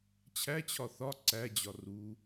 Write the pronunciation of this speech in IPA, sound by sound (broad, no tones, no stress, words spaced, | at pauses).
t͡ɕʰæt͡ɕʰɒ θɒ ǀæd͡ʑɒ ru